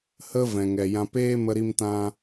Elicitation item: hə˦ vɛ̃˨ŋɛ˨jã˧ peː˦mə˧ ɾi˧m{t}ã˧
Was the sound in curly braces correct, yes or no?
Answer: yes